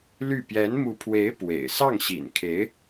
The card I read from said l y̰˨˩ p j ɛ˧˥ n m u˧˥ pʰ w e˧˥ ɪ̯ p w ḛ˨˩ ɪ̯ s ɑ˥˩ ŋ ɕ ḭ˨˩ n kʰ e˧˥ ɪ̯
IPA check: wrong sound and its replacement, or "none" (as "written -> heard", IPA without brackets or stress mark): y̰˨˩ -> y˥˩